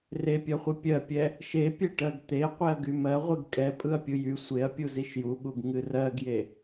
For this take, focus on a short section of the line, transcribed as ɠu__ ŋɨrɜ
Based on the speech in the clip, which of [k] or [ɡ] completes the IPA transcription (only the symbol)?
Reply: ɡ